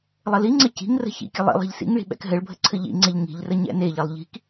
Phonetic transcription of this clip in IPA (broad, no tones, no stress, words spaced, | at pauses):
lˠəliŋ͡ǀə ci̤ŋrə̤ çḭkʲə lˠḭ lˠe̤ʎsḭŋɭi̤ ɓɛ̰kɦɘɭbʱə ǀʰɘʎḭŋ͡ǀeʎ ŋi̤ʎrə ɲɛ̰neʎelˠ ʎi̤k